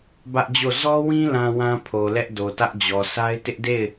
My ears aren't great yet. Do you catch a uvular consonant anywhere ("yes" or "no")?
no